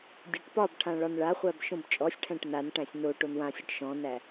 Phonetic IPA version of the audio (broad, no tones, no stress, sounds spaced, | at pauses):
dʲ ɒ ʈ p ɒ b ʈʰ ã ɭ ɒ n ɭ a χʷ æ b ʃ õ b t͡ʃʼ ɔ sʲ ʈʰ æ̃ ʈ n a n ʈ æ̃ sʲ n o ʈ o n w ã sʲ ɔ ʈ ʃ ɔ̃ n æ